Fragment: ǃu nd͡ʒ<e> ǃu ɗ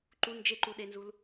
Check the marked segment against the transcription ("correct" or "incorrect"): correct